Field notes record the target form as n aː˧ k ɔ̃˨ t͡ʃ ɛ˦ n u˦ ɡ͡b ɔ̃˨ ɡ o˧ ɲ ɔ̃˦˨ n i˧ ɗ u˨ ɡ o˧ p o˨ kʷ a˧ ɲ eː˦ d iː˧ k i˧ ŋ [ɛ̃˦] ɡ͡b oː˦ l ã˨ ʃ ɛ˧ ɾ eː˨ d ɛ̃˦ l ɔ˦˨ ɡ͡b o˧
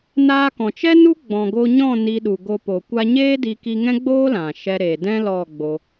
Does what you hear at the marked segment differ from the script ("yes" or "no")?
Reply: no